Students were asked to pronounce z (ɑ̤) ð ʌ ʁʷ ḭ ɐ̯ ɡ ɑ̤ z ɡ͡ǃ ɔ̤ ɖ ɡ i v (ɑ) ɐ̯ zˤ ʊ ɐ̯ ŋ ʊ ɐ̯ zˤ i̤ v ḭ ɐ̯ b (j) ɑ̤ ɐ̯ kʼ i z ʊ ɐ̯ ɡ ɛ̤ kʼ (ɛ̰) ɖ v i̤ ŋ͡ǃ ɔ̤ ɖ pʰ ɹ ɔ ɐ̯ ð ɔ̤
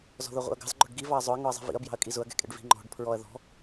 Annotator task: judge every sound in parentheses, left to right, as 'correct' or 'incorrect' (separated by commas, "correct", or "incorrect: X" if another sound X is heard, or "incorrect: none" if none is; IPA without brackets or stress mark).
incorrect: ɔ̤, correct, correct, correct